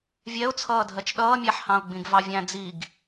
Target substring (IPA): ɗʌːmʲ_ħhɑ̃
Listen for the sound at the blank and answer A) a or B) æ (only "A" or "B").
B